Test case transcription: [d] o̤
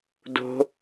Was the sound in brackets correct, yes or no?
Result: yes